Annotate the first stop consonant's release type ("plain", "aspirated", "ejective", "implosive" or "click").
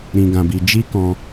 plain